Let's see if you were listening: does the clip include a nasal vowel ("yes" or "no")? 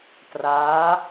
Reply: no